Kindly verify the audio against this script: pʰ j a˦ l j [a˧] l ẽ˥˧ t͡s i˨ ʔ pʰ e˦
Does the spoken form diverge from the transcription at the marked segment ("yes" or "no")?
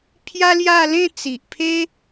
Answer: yes